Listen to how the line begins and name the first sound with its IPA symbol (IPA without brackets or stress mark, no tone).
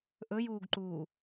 ʔ